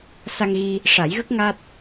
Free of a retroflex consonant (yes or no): no